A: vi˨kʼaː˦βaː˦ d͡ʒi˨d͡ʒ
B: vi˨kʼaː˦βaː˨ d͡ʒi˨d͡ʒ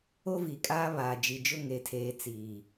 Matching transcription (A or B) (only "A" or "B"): B